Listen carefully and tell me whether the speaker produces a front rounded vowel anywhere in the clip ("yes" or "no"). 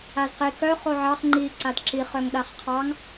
yes